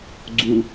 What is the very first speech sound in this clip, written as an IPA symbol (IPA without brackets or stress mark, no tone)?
ɡ͡ǀ